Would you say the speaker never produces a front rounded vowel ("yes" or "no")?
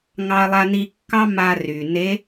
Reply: no